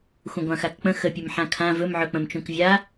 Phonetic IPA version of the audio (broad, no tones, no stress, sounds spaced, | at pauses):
xʷ ə̃ ɡʷ ã x a k k͡p ə̃ x ə pʲ ɵ m ħ ã kʰ ã v ɵ m ʕ ɵ k͡p ə̃ m t͡ʃ ũ k vʲ a